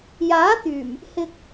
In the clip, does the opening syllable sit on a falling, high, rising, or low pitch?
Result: rising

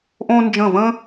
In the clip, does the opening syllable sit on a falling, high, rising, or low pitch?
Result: high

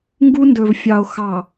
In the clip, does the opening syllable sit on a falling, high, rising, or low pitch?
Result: high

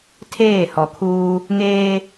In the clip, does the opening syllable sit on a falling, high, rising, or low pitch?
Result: falling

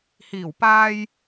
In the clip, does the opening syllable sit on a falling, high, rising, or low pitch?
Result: low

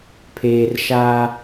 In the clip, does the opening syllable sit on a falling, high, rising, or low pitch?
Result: low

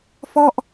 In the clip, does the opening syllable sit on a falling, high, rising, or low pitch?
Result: falling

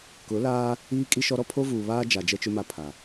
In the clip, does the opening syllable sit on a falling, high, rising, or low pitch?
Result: rising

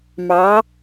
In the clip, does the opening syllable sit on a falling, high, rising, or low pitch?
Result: rising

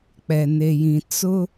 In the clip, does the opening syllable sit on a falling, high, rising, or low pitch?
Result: low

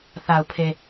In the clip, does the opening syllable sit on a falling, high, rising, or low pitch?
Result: low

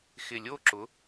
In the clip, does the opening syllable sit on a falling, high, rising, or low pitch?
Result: low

